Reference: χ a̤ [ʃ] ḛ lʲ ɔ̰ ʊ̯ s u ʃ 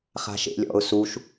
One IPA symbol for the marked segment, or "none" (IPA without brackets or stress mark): ʃ